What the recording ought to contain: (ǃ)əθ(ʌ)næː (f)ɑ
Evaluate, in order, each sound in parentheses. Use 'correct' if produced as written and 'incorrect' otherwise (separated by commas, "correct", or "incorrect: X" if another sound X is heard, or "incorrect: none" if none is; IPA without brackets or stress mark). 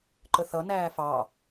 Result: correct, correct, correct